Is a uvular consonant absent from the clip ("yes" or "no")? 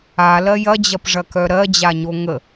yes